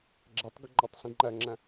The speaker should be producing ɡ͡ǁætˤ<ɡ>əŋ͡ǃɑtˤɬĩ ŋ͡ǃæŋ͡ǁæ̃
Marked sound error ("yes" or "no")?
no